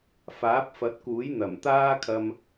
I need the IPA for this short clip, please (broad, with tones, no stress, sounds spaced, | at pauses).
f aː˨˥ p̚ f ɐ˨˥ t̚ k uː˨˥ j n̪ ɐ˨˩ m t̪ aː˥ kʰ ɐ˧ m